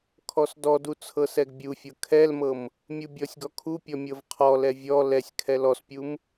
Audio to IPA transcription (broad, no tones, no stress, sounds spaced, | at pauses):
kʰ ɔ s d ɔ d u t͡sʰ ɤ s ɛ ɡ bʲ u fʲ ɤ kʰ ɛ l m ɤ m | mʲ u bʲ ɔ sʲ ɡ ɔ kʰ u pʲ ɔ mʲ ɤ v qʰ ɔ l ɛ vʲ ɔ l ɛ sʲ kʰ ɛ l ɔ s pʲ u m